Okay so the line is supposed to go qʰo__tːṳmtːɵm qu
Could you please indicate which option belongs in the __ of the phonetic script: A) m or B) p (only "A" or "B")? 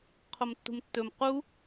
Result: A